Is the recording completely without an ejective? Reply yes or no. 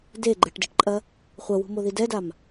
no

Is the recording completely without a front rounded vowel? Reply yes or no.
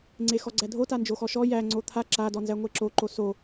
yes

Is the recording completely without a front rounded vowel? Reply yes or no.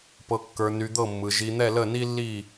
no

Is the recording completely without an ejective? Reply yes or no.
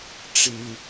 yes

